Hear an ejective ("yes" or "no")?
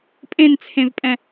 yes